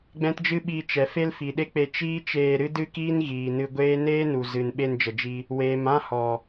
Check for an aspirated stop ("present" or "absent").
absent